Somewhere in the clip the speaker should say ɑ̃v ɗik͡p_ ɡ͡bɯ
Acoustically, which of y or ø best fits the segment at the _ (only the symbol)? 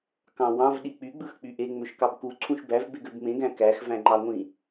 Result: y